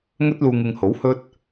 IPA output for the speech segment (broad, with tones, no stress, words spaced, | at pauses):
ŋɵ˥t̚luː˧ ŋɪ˧ŋho˨˥whɵ˥t̚